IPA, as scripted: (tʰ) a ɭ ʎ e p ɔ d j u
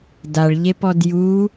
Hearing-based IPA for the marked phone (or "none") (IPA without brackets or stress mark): d